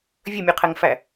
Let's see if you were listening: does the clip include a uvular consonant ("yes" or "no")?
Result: yes